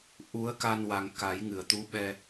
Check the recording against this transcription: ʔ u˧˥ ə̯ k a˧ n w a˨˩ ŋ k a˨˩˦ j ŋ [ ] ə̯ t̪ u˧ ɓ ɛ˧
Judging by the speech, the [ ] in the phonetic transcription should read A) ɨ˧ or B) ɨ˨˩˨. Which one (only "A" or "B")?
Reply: B